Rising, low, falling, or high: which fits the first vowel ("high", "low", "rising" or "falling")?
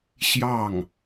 falling